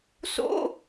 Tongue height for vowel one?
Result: mid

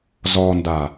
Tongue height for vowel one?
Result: mid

